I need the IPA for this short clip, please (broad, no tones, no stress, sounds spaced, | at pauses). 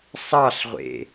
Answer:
sˤ ɑ ɬ ʁʷ ḛ